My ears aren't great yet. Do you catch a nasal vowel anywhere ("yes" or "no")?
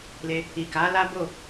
no